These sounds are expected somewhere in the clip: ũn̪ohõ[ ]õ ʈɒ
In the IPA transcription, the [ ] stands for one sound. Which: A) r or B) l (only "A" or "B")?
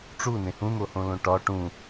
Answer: B